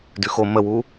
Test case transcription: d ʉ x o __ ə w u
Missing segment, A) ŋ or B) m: B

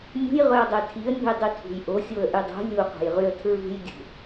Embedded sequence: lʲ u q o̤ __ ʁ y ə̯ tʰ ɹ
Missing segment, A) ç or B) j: B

